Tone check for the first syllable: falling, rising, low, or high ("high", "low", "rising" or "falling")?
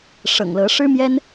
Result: low